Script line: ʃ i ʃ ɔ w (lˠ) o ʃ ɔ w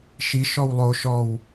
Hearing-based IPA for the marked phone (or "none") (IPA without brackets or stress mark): lˠ